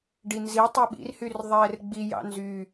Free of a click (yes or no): yes